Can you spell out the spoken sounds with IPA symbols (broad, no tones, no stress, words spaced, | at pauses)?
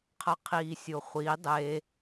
qʰɐqʰiːsʲoχʷi dˤe